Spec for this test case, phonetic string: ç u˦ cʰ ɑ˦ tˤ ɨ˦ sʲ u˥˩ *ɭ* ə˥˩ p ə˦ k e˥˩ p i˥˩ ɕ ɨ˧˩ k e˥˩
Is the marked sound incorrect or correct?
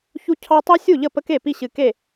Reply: incorrect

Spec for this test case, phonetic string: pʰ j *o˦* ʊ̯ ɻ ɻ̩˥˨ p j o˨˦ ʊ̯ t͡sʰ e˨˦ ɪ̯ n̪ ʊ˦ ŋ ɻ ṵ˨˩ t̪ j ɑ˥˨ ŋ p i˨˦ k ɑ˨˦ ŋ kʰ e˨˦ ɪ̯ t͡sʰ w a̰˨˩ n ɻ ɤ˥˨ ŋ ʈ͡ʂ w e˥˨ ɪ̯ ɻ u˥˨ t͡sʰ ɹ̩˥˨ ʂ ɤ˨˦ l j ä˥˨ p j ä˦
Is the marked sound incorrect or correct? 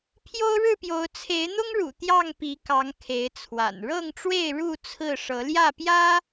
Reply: correct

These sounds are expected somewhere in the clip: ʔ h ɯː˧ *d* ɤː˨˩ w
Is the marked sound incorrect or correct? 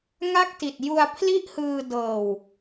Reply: correct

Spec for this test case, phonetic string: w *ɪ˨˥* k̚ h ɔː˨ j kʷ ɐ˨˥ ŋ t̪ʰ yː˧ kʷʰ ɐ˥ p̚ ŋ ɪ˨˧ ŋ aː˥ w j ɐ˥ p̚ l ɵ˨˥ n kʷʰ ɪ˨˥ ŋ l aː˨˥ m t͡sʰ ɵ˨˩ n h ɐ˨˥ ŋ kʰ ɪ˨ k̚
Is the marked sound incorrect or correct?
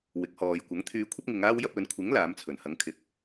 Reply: correct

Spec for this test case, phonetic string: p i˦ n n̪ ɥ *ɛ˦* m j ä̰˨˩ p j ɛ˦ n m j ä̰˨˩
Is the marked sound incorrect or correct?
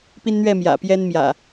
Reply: incorrect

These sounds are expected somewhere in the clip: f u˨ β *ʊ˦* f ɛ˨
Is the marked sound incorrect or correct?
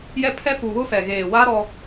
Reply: correct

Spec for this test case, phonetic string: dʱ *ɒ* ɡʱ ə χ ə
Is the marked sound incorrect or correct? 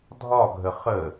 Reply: correct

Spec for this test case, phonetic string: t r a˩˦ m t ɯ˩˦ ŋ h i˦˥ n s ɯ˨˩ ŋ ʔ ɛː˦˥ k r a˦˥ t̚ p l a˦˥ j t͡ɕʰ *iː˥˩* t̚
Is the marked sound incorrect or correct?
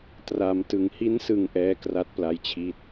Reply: correct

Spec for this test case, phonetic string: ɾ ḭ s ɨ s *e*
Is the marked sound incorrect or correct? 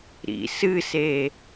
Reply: correct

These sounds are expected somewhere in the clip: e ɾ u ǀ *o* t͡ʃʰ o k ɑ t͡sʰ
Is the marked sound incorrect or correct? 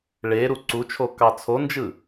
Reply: incorrect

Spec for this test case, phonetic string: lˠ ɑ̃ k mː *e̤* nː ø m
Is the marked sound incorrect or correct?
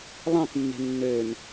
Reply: correct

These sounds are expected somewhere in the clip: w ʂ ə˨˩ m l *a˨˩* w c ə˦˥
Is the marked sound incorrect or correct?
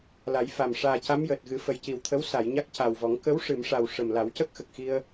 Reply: incorrect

